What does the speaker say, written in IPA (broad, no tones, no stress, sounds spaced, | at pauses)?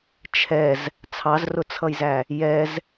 t͡ʃʰ ɛ z | t͡sʰ ɑ z r ʊ t͡sʰ ʌ j z æ | j ɛ z